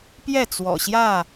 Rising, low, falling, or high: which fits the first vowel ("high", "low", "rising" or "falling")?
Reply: falling